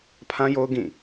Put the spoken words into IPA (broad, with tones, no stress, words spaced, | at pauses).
pʰã˦jo˦ʊ̯ ɡĩ˦˨